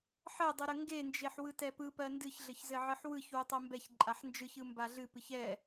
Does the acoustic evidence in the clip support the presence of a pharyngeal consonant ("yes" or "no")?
yes